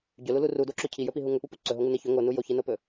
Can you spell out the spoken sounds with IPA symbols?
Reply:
ɟ ɵ l u l u r u d o ǁ o cʰ i j ɵ p i ɦ u ŋ ɵ p u p u ǀ ɵ ɦ o ŋ u n i ç ɵ ŋ o n u j o ç i n o p ɵ

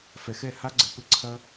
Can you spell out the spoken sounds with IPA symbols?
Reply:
f ɛ˧ x ɛ˦˨ h a˦ ɡ͡ǀ ɘ˧ p ɘ˦ ǀʰ ɐ˦

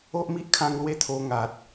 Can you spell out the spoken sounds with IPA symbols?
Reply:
o˦ ʔ m i˦ ʔ kʰ ã˧ ŋ l w e˦ t̪ʰ o˧ ŋ a˨ t̚

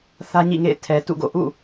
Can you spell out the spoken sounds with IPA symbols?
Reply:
θ ä˦ ɲ ḭ˦˨ ŋ ḛ˦˨ ɪ̯ tʰ ɛ˨ t ṵ˦˨ ɡ o̰˦˨ ʔ ṵ˦˨

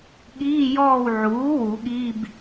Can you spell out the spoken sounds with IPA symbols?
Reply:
ɠ iː˧˥˧ j ɔː˦˨ w ʕ uː˩˥ w u˨˩˦ ɠ i˧˥˧ b

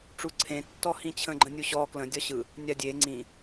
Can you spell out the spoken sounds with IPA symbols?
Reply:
ʈ͡ʂ u ǀʰ ẽ tː ɔ h ĩ t͡ɕʰ ə̃ ɡ͡ǃ ə̃ nʲ u ɕ ɔ k l ə̃ dʲ ɒ ɕ ɯ | nʲ a dʲ e ŋ͡ǀ ĩ

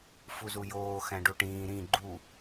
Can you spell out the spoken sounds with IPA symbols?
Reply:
f u z u j oː x æ̃ ɖ u ʈ ĩː ɾ ĩ ɡ͡ǃ u

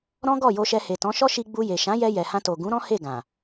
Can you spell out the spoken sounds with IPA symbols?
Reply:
ɾ ɔ̃˦ ɡ ɔ˦˨ j o˧ ʃ ɛ˧ h e˨ t ɔ̃˨˦ ʃ ɔ˦ ʃ i˧ ɡ͡b u˧ j e˨ ʃ ã˨˦ j ɛ˧ j ɛ˨ h ã˧ t o˨ ɡ ũ˨˦ ɾ ɔ̃˦ h e˦˨ ɡ ã˨

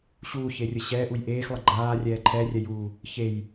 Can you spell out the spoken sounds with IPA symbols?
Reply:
ɕ uː ç e rʲ ə ɕ ɛː ʔ u j ʔ eː x lˠ ə ɡ͡ǃ aː rʲ ɛː ǃʰ ɛ rʲ ɛ j uː | ç e j

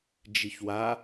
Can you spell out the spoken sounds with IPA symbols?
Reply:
d͡ʒ i ç w a

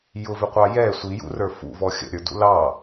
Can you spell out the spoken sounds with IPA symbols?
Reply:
j ʊ v ɪ qʷ ɑ j ɛ sʷ i j ṵ r ə˞ f ṵ v ɔ xʲ ə̰ ɾʲ ə˞ d ṵ l ɑ

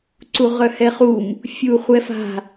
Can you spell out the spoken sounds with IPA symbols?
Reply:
ǀ u ʁ œ h ɛ χ u m | fʲ u χʷ ɛ f a̤

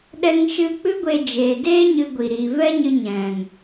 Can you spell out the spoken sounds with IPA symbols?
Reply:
ɗ ɛ˧ ŋ ʃ ɨ˧ k͡p ɨ˦ ɡʷ e˧ d͡ʒ eː˨ d eː˦ ɲ ɨ˧ ɡʷ i˨ ɾ i˨ v ɛ˦ ɲ ɨ˧ ɲ ɛ̃˨ ŋ

